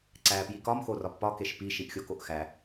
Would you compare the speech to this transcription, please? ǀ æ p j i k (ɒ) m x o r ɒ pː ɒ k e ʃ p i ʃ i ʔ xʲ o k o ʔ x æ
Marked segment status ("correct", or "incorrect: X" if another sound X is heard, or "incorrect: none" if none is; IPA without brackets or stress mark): correct